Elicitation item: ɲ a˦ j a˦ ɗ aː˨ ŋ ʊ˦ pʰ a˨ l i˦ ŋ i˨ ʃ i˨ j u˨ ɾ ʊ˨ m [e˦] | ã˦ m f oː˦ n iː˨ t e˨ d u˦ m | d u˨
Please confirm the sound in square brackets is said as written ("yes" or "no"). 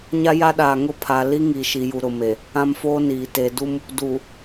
no